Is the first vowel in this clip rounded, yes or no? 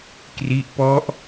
no